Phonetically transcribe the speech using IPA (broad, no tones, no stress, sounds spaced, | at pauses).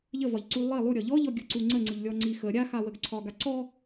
ʎ ə v ɒ ʎ ǀ u lˠ i lˠ u ɾʲ ɒ ʎ ɔ ʎ ɔ ɡʲ ɯ ǀ u ŋ͡ǀ ə ŋ͡ǀ ɯ ʎ lʲ ɔ ŋ͡ǀ i x ə ɾʲ a x a w ə ɡ ǀʰ ɒ ɡ a ǀ ɔ